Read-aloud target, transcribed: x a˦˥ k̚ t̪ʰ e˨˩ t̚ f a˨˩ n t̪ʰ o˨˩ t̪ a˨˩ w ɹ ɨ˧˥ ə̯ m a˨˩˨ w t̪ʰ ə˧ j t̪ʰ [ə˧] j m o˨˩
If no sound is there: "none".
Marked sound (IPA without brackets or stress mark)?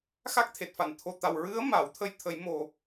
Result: ə˨˩˦